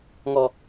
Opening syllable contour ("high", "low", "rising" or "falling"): high